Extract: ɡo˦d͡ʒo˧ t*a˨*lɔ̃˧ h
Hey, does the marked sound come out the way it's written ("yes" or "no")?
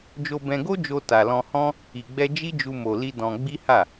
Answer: yes